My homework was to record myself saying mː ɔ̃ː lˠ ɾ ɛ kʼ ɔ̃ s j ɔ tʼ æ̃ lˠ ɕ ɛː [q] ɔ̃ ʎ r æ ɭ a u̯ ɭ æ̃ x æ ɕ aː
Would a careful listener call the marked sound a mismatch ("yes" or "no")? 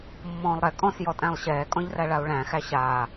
yes